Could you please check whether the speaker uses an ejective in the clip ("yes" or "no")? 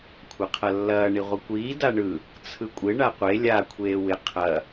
yes